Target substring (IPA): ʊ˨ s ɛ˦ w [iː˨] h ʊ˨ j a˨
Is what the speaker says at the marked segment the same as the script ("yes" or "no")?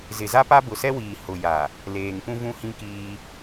yes